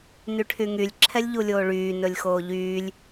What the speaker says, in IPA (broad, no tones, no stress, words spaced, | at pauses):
nyʈʰyŋylʲ ǁʰɛlʲʎulʲoːɭyː nɵlʲxoːʎyːlʲ